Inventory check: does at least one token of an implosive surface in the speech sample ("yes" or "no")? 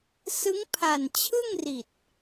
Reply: no